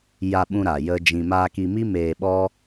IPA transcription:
j a˧ ɓ ũ˧ ɾ a˨ j ə˧ d͡ʒ ĩ˧ m aː˧ k i˧ m i˦ m eː˧ ɓ ɔ˦

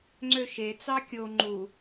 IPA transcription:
ŋ͡ǀ ø ʃ e t͡s ɑ kʲ o ŋ͡ǃ u

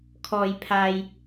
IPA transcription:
kʰ ɔː˨ j pʰ aː˨ j

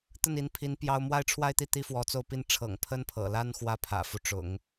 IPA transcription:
t̪ ə˥˩ n i˧˥ n pʰ i˧˥ n p j ɑ˥ ʊ̯ m w a˥˧ ɪ̯ ʈ͡ʂʰ w a˥˧ ɪ̯ t̪ i˥˩ t̪ i˥ f w ɔ˧˥ t͡s o˥˩ ʊ̯ p i˥ n ʈ͡ʂʰ ɤ̰˨˩ ŋ pʰ ə˥ n pʰ ɤ̰˨˩ l a˥ n x w ä˥ pʰ ä̰˨˩ f u˦ ʈ͡ʂ ʊ̰˨˩˦ ŋ

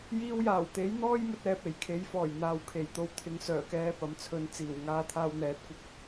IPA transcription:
j iː˧ w j aː˨˩ w t̪ e˨˥ j n̪ ɔː˥ j m ɵ˧ t̚ ɛː˨ p̚ e˨˩ j kʰ e˨˥ j f ɔː˨˩ j n̪ aː˨˧ w kʰ e˨˩ j t̪ o˧ w t̪ʰ ɪ˨˥ ŋ s œː˨˩ k ɛː˧ p ɐ˨ m t͡sʰ ɵ˨˧ n t͡s iː˨˩ w ŋ aː˧ t̪ʰ aː˧ w n̪ ɛː˨˥ t̚ kʷ ɐ˧ k̚

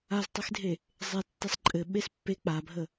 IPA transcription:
a z tˤ i x dʱ e | zˤ e tː e sˤ ǃʼ ɘ ɓ e s pː e k͡p a bʱ ə

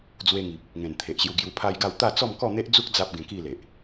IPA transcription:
d͡z w e˧ ŋ i˨ p̚ | ŋ ẽ˨˩ n t̪ʰ e˨ ʔ ɕ j u˧ ɡ j u˧ pʰ a˦ j ɡ a˥˧ w t̪ a˥˧ t͡s ɔ˥˧ m k ɔ˥˧ n̪ e˦ ʔ d͡z u˦ k̚ d͡z a˦ p̚ ɡ ẽ˧ k i˥˧ l e˨ ʔ

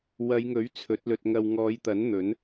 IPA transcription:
w ɐ˨˧ j ŋ ɵ˨˥ ɥ t͡sʰ ɵ˨˥ t̚ l ɵ˧ t̚ ŋ ɐ˧ w ŋ ɔː˨˧ j t̪ ɐ˨˥ n n̪ ɵ˨˥ n

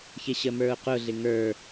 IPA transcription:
ç ɪ ɕ ə m ə˞ ʊ̯ q ʊ ɮ ɪ ŋ ə˞

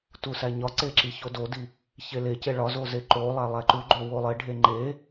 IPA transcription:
t u s æ ɲ ɒ ǀ e ǁ i ç o d o d i | ç e l e c e ɭ ɒ z o z e ǃ o lˠ æ lˠ æ ǃ u ɡ͡ǃ o w o lˠ e ɖʱ e ŋ͡ǃ e

